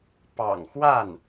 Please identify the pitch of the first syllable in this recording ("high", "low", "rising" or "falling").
low